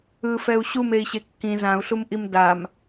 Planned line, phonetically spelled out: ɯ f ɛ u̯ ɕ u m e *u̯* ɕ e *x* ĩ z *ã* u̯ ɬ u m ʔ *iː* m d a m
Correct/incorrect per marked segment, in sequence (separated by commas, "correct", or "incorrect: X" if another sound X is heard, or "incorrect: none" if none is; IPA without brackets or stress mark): incorrect: i̯, incorrect: kː, correct, incorrect: i